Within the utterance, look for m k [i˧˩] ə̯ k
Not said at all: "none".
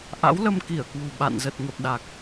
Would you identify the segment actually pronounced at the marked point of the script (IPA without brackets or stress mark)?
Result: i˧˩